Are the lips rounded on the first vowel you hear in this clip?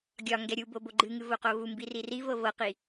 yes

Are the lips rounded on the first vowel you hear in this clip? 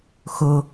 yes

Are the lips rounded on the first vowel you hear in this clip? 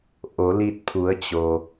yes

